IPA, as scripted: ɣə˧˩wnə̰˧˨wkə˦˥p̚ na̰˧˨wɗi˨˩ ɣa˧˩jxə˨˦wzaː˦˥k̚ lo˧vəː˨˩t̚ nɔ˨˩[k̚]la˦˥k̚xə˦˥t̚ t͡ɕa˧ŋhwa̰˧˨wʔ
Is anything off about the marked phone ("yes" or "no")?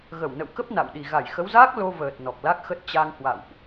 no